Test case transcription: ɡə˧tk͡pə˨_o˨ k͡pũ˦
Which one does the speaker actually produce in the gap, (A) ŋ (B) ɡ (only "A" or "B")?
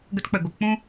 B